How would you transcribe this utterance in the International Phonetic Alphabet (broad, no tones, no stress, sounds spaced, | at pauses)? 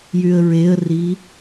j y ə̯ ɹ e ə̯ r i